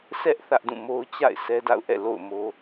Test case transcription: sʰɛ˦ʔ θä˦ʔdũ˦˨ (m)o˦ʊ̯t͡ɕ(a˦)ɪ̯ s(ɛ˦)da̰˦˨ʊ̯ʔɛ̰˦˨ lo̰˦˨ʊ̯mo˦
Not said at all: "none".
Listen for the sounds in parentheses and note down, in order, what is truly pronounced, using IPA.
m, a̰˦˨, ɛ˦

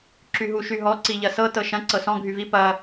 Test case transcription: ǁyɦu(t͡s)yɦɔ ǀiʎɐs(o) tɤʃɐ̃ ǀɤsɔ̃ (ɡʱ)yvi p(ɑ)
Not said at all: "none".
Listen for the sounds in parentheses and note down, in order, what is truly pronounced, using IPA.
ʃ, ɤ, ɡʱ, ɐ

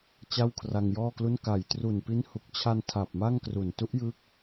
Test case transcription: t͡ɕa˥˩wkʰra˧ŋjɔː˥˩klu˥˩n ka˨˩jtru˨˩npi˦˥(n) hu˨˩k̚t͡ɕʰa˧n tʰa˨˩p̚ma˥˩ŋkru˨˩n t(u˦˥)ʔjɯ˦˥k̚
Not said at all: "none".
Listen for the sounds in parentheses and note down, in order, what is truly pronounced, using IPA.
n, u˦˥

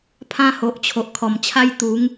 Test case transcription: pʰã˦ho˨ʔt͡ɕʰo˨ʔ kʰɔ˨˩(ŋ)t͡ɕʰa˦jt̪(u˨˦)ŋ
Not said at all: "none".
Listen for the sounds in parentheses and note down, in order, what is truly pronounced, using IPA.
m, u˨˦

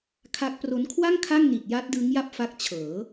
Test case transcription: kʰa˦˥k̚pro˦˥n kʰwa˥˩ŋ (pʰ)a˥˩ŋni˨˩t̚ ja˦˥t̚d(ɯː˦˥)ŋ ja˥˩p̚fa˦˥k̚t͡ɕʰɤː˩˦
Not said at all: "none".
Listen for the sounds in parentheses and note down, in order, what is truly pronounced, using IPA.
kʰ, ɯː˦˥

